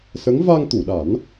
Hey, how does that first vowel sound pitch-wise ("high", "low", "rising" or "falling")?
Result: rising